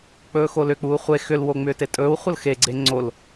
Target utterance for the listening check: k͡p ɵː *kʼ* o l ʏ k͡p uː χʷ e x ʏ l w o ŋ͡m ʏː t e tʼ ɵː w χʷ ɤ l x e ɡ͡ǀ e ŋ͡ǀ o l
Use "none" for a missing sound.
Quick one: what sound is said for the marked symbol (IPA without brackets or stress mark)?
x